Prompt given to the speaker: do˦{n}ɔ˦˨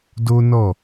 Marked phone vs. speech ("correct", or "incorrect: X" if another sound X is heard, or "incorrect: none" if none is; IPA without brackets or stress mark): correct